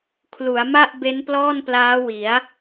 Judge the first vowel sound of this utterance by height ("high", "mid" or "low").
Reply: high